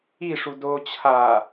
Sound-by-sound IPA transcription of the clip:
iʂu do t͡ɕʰa

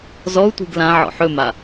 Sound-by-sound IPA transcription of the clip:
zɔu̯tʷi̤ɡ lãʕɔ̰ ħɵma

